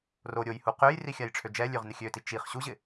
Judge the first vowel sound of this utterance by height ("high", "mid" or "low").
mid